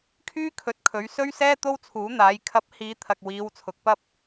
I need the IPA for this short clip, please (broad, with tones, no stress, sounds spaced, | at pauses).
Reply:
kʰ yː˥ kʰ ɵ˨˥ t̚ kʰ ɵ˨˧ ɥ s ɵ˥ ɥ s ɛː˥ t̪ o˥ w t͡sʰ uː˨˥ n̪ aː˨˧ j kʰ ɐ˨˥ p̚ h iː˨˧ t̪ʰ ɐ˨ k̚ w iː˨˧ w t͡sʰ ʊ˨ k̚ p ɐ˥ p̚